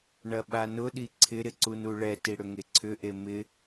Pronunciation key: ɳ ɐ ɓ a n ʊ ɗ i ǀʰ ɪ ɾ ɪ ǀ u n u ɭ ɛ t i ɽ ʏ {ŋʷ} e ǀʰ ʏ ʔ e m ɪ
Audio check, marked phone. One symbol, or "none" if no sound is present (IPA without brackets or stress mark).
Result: ŋ